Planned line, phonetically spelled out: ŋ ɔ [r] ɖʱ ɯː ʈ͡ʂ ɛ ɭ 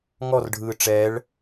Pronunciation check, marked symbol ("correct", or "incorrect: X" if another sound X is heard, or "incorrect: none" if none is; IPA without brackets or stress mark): correct